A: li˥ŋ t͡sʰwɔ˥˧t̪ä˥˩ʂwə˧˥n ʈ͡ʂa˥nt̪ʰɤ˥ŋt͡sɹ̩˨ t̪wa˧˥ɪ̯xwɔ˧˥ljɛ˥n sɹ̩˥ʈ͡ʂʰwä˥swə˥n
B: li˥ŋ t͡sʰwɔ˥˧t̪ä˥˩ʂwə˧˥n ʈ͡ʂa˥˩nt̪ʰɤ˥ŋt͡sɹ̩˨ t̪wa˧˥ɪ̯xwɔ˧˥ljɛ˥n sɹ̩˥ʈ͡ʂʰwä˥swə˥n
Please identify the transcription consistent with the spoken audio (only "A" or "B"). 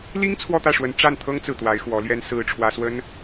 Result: B